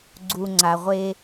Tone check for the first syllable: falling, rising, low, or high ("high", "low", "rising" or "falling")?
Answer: low